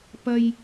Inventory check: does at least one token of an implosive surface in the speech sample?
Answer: no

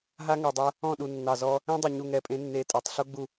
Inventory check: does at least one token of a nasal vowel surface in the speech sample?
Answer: yes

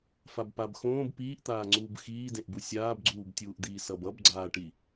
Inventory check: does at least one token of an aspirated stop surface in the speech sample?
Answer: no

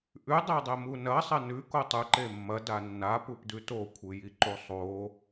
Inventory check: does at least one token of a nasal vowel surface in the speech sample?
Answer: no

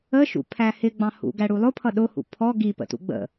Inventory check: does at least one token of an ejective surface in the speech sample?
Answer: no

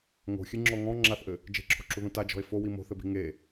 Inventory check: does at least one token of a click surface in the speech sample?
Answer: yes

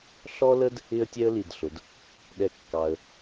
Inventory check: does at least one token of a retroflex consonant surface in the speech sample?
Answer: no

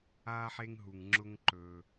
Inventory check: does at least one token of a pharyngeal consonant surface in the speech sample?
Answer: yes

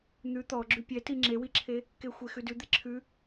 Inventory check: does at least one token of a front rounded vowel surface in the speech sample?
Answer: no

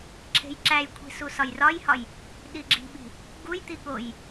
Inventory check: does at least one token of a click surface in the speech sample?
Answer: yes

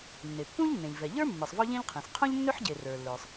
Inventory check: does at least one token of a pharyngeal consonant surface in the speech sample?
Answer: yes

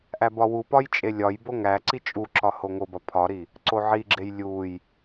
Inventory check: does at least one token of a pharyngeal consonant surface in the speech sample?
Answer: yes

